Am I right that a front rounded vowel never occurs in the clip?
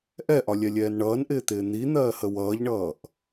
yes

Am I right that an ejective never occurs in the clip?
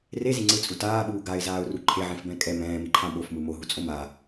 no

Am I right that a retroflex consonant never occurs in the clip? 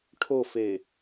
no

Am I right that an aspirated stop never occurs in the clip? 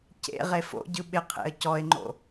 no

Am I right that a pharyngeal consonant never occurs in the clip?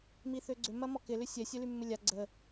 yes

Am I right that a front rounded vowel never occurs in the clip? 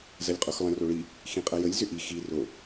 no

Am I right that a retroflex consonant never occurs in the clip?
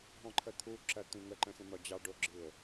no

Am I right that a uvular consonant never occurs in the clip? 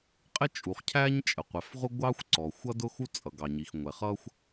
no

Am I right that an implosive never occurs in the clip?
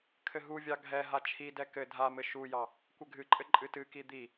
yes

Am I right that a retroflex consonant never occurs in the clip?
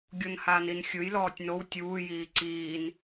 yes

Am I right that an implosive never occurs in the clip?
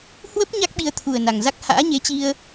no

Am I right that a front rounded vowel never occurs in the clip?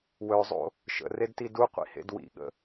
no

